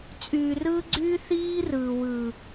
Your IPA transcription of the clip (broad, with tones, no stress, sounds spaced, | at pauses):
t͡sʼ yː˨ r ɯː˦ ɡ͡ǀ yː˦ θ iː˦ r ɯː˨ w ɯː˨